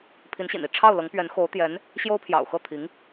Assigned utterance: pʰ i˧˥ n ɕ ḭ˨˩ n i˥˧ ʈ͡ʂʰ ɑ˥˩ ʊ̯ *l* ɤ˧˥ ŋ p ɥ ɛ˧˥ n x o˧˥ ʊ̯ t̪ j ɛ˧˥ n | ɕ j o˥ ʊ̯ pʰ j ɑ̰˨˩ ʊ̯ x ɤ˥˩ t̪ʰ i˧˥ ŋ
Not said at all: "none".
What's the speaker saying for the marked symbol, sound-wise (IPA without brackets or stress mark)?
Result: l